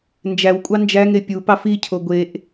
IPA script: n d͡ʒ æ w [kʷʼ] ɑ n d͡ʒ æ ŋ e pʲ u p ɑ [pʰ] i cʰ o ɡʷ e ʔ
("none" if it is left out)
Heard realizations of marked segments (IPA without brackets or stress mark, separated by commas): kʷʼ, f